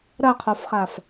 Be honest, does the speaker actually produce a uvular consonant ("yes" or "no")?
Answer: yes